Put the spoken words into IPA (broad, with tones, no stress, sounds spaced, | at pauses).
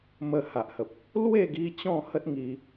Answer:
m ə˧ h a˨ ʔ h ə˨ p̚ | l w e˥˧ ɡ i˧ t͡ɕ ɔ̃˥˧ h ə˦ t̚ ŋ i˧